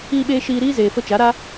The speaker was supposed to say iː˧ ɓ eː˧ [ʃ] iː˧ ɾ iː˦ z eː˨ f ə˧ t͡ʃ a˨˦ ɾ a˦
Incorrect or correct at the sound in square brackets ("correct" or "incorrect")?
correct